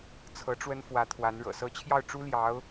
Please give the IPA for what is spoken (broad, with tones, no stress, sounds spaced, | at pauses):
t͡sʰ ɤ˧˥ ʈ͡ʂ w ə˥ n f w ä˧˥ t̪ʰ w a˧˥ n ɻ ɤ̰˨˩ s ɤ˧˥ t͡ɕʰ j ɑ˥˩ ʊ̯ ʈ͡ʂ u˥ l j ɑ˧˥ ʊ̯